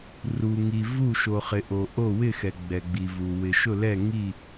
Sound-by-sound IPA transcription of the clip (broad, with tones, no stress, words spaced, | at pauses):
ru˩ŋi˩ vu˧˩ ʃo˩χɪ˩ʔo˩ʔo˧˩ wɪ˧˩xɛ˩ ɡ͡bɛ˩ɡ͡bi˩vu˩ wɪ˩ʃʊ˧˩lɛ˧˩ ŋi˧˩